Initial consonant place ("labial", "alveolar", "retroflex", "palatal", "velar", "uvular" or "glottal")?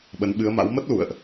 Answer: labial